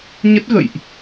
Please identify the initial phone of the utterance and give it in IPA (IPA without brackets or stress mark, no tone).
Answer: ɲ